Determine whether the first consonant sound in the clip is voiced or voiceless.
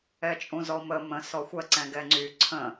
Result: voiceless